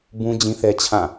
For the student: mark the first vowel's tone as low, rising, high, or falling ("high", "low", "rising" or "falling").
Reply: high